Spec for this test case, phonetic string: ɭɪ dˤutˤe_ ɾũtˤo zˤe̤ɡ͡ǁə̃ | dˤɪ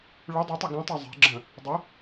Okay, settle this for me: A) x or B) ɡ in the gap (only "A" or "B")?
B